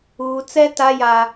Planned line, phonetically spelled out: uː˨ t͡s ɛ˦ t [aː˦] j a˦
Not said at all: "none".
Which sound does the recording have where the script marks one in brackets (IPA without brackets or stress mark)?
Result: a˦